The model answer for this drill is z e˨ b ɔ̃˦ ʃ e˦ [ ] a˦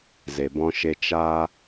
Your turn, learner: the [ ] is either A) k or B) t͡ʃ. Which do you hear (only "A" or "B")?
B